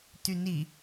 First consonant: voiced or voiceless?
voiceless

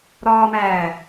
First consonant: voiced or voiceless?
voiced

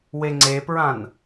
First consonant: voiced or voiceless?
voiced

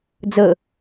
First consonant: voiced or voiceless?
voiced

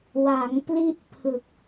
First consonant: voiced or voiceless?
voiced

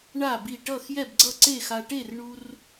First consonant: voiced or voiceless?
voiced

